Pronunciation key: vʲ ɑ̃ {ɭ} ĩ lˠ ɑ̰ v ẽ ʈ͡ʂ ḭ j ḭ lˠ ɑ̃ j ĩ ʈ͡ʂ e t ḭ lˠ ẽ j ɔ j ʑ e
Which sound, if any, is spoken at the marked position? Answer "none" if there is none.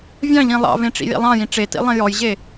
ʎ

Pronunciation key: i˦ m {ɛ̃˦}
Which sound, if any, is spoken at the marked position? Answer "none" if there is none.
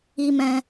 ɛ̃˦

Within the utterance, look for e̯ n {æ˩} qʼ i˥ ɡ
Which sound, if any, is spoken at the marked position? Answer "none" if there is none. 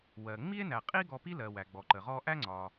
æ˩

